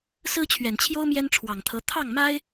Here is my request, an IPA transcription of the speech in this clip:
s ɹ̩˥ t͡ɕʰ ɥ ɛ˨˩ n t͡ɕʰ j o˥ ʊ̯ m j ɛ˥ n ʈ͡ʂʰ w ɑ˨˩ ŋ t̪ʰ ɤ˧˥ t̪ʰ ɑ˥˩ ŋ m a˥ ɪ̯

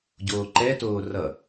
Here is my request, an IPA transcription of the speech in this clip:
ɟ oː ǃ ɛ t oː r ʌ

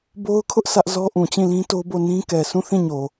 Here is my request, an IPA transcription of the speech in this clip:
b o˦ ʊ̯ kʰ ʊ˦ ʔ s ä˦ ʔ z ɔ˦ ʔ ũ˨ t͡ɕ ĩ˦˨ l ĩ˦ t o˦ b o˦˨ n ĩ˦ k ɛ˨ sʰ ũ˦˨ θ ĩ˦˨ ɲ o˨

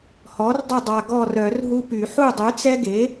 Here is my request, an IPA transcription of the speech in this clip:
h ɔ˩˥ r dˤ ə˦˨ dˤ a˨ ɡ ɔ˦˨ r œ˨˩˦ r ɦ u˦ p y˨˩˦ ħ u˦˨ dˤ y˩˥ t͡s ɛ˦ ɡ e˩˥

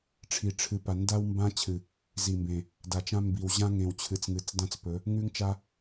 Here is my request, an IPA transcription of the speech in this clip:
ʈ͡ʂʰ i˨ ʈ͡ʂʰ ɨ˨ p a˨ n d a˦ w m b ã˦ t͡ɕʰ ɨ˨ | z i˨ m b ẽ˨ | d a˨ t͡ʃ ã˦ m b i˨ w ʑ ã˦ ŋ ẽ˨ w t͡ɕʰ ɨ˨ t͡s ŋ ɨ˨ t͡s d ã˦ t͡s p ɵ˨˦ | ŋ ʉ˦ ŋ t͡ʃ a˦

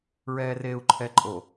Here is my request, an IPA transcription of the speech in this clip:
ɹ ɛː r eː u̯ ǃʰ ɛ ǃʼ o

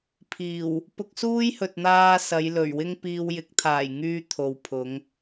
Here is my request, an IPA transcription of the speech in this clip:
pʰ iː˨˩ w | p ʊ˧ k̚ s uː˥ j h ɵ˨ t̚ n̪ aː˧ s ɐ˨˧ j l ɵ˨˩ ɥ w ɪ˥ ŋ p iː˧ w j ɪ˨˥ k̚ t̪ʰ aː˨˩ j ŋ yː˧ t̪ʰ o˨ w pʰ ʊ˨˧ ŋ

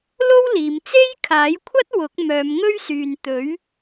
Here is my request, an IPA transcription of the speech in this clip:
l o˥ w l iː˨˧ m t͡s e˥ j kʰ aː˨˥ j kʷʰ ɐ˥ t̚ w ʊ˨˥ k̚ m œː˨˧ m ŋ ɵ˥ ɥ s yː˨ n t̪ ɵ˨˥ ɥ

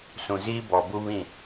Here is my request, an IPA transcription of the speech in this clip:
s ũ˨ z iː˦ b ɔ˨ b u˦ β ĩ˦˨

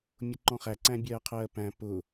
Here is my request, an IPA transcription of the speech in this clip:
mʲ ʊ ǃ ɔ̃ χ æ ǀ æ̃ bʲ ɜː qʰ ɜː p æ̃ p ʊ

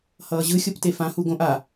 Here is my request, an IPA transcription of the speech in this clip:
h ʌː ʑ ɯ xʲ o p t e f ã h u ɡ õ ʔ a

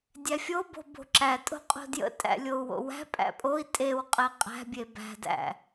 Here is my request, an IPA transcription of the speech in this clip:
dʲ æ fʲ o b o̤ b o̤ ǁ æ tʼ o̤ qʼ o̤ d j ə̰ tʼ æ̰ lʲ o u̯ w o̰ w æ̤ pʼ æ̰ pʼ o i̯ tʼ e w qʼ e qʼ æ̤ bʲ e b æ̤ d æ̰

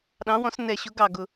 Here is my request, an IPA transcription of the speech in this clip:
ɗ ɑ̃˨˥ w ɔ̃˨˥ s n ɛ˨˩ ɕ ʊ˨˥ ɡ ɑ˨˩ ɡ ʊ˨˩

